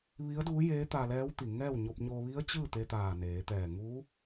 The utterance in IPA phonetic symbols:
ʋi˧˥ə̯duː˧˥jeː˧˥ t̪a˧lɛː˧˥wt̪i˩ŋɛː˥˨w ɲo˧p̚ɲo˧ʋi˧˥ə̯ t͡ɕɯː˥˨t̪e˧ t̪aː˧˩neː˩˧t̪ɛː˧˩ ŋu˧˥

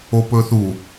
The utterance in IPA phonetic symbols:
opɵː θu

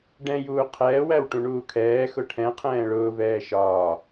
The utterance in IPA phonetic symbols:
ɖɛ̃juː qʰɛːwæw ʈũɳuːkʰɛːxʊ ʈʰɛ̃ qʰɛ̃ːɭʊːvɛː ʃɒː

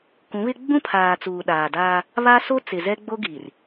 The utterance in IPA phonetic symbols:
kũ˨˦βɪ˦ ɡ͡bũ˦pʰaː˨ t͡suː˨ɗaː˨daː˦ | βa˦so˦ t͡sɪ˨zɛ˦ ɡ͡bo˦ɡi˨r

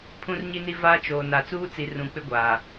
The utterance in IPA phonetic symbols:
pʰũ˨rɲi˨ni˨ vaː˦t͡ʃoː˨ na˨t͡suː˦t͡si˨ rũ˨k͡pɪ˦ɡʷaː˨

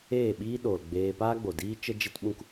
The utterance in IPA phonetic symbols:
eː˦˨ɓiː˦ ɗo˨lɡ͡beː˧ paː˦ɡ͡bo˨ diː˦t͡ʃə˦ d͡ʒe˦tɓũ˦k

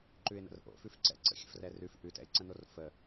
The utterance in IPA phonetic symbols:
ǃʉɪ̯nə̰rʔo̰ fʉfǀɛ̰ǀə̰ xʲə̰frɛrʉf ʔʉtɛ̰ɪ̯ǀə̃nor fə

